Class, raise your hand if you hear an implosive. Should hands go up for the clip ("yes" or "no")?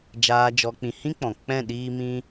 yes